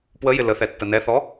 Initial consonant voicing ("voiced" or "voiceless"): voiceless